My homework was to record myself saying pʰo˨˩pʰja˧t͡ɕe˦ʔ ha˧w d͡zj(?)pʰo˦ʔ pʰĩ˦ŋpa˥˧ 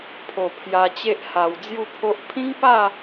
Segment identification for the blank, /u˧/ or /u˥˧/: u˥˧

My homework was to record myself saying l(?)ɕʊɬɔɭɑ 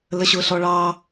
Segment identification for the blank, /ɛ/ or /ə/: ə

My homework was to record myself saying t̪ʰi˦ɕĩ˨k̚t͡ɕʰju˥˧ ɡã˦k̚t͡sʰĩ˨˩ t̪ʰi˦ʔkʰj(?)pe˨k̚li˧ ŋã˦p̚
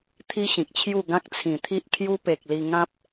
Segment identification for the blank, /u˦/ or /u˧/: u˦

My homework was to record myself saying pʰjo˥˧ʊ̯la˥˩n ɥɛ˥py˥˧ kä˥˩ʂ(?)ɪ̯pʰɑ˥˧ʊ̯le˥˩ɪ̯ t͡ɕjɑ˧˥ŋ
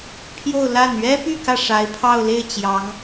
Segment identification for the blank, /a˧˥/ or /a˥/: a˧˥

